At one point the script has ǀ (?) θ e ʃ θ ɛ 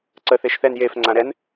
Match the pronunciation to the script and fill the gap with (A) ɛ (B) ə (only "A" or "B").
B